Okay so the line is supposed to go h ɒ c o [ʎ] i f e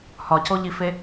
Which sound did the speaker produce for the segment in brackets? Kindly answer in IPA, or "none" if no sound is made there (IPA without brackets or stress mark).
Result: ʎ